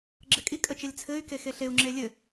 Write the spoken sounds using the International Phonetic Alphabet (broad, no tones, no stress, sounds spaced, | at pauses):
ɡ͡ǁ ɘ kʼ i kʼ ə t͡ʃ ɛ lʲ t͡sʰ ɘ y̯ k e x e ɬ e u̯ ŋ͡ǁ e lʲ ɘ